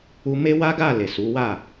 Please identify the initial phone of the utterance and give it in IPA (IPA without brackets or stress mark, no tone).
u